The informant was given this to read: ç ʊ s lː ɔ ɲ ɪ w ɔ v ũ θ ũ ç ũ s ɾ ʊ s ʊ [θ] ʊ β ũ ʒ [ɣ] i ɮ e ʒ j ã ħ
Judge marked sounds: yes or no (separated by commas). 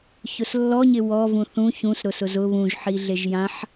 no, no